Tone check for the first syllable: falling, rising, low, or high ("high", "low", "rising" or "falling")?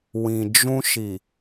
low